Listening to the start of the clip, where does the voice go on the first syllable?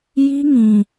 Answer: high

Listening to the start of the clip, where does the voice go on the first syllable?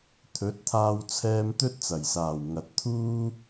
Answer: rising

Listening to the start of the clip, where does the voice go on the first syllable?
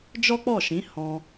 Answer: high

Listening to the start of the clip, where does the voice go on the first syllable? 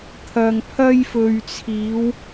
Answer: low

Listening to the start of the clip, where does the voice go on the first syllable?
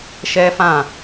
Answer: high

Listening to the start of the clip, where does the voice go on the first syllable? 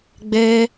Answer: high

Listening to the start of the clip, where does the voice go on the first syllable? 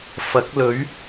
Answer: rising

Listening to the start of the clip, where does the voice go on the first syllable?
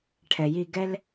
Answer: low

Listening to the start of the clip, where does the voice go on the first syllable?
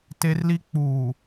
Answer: high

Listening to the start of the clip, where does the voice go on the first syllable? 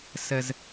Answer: high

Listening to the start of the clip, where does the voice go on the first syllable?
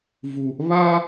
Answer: low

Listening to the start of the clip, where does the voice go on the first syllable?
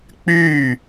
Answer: falling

